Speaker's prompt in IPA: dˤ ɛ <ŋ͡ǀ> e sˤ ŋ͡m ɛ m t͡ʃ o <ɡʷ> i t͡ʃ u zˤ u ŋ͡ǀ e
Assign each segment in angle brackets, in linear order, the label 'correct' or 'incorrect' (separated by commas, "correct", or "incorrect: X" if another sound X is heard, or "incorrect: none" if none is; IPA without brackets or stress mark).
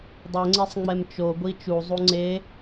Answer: correct, correct